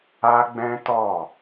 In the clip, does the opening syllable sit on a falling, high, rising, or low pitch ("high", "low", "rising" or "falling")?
high